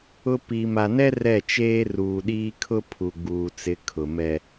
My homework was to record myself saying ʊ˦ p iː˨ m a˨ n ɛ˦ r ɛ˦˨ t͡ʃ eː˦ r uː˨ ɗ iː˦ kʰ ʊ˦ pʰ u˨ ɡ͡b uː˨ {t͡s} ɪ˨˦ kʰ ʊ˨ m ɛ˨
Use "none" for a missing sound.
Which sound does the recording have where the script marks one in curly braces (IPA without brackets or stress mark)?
t͡s